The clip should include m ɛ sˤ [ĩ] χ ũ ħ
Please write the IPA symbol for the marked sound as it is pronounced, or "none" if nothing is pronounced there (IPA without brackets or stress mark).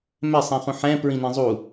ĩ